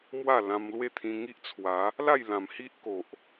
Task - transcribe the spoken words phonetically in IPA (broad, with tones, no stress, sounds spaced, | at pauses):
m w a˥˧ l ã˧ m l w e˥˧ t̪ʰ ĩ˧ ŋ i˦ ʔ t͡sʰ w a˨˦ | l a˥˧ j l ã˨˩ m h i˦ ʔ k o˨ ʔ